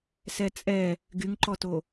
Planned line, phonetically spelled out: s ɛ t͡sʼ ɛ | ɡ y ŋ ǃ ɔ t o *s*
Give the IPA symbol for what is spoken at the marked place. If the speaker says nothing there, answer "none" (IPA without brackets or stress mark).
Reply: none